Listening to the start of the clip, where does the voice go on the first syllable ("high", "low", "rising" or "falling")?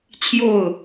falling